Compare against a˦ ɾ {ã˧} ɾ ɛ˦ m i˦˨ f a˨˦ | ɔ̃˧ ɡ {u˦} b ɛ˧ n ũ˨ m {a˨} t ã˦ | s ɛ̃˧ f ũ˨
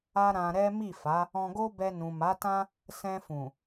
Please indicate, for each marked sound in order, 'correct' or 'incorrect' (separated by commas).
correct, incorrect, incorrect